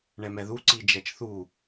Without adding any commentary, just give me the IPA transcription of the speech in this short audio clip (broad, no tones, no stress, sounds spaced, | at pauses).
ɳ ɛ m ɛ ð u ǀ i d͡ʒ ɛ t͡ʃ θ u